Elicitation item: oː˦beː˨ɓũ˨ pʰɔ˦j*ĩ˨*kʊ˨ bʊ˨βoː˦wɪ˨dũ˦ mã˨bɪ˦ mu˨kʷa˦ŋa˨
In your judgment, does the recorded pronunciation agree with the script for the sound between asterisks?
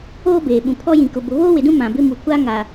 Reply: yes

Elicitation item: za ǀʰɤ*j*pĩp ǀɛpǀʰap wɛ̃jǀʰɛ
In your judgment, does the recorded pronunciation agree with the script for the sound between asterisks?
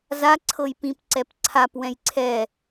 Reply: yes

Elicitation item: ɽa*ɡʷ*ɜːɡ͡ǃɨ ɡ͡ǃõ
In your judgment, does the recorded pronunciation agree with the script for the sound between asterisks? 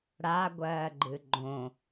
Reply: yes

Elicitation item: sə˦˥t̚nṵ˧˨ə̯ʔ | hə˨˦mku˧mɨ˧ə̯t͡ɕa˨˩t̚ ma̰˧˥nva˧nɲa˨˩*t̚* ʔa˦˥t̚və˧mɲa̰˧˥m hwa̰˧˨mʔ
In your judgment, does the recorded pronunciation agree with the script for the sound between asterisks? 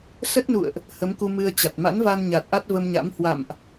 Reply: yes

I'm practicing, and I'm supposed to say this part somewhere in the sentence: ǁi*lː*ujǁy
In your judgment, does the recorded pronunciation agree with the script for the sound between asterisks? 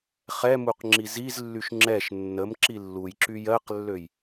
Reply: yes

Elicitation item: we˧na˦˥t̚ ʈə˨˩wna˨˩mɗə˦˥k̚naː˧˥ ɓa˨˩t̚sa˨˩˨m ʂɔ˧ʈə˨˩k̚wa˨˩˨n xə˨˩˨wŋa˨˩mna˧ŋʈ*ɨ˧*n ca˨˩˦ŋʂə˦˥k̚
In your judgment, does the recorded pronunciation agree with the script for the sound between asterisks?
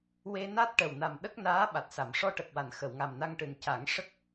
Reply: no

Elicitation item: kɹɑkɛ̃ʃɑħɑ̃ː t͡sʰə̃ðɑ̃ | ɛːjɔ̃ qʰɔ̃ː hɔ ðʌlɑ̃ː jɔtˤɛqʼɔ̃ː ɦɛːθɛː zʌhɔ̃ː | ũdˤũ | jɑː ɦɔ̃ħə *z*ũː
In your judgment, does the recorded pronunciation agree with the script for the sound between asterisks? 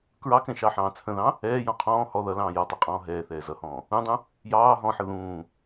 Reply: no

